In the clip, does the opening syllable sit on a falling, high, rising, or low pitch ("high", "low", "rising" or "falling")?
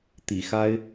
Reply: low